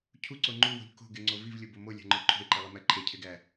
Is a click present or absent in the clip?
present